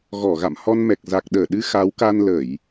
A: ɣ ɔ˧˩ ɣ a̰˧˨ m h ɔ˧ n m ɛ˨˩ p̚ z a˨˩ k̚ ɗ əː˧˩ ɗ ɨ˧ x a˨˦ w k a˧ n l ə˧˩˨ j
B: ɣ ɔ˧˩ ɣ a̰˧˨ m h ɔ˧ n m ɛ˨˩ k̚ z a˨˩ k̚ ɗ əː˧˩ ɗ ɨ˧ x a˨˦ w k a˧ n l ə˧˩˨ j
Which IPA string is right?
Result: B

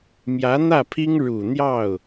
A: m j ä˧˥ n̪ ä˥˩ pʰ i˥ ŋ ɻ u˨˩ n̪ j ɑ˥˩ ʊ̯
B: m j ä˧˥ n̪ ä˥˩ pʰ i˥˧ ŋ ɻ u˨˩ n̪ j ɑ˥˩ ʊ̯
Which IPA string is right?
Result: A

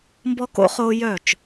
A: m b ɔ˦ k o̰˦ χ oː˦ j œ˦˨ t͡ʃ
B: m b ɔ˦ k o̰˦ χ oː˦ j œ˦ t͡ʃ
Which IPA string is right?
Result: A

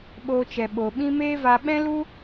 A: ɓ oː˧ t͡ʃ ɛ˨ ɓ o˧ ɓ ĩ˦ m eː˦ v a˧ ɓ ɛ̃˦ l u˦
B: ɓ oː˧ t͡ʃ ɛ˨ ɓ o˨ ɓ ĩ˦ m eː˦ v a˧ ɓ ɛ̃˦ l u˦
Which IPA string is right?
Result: B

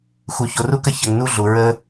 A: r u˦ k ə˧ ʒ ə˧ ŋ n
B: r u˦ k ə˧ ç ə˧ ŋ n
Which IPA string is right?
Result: B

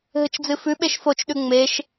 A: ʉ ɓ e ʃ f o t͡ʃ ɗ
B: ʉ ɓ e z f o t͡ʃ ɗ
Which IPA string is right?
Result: A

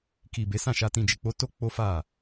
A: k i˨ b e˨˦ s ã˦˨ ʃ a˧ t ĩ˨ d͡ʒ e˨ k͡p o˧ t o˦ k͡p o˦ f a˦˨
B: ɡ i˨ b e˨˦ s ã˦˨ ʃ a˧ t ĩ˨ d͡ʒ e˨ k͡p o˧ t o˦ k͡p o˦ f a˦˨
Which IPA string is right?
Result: A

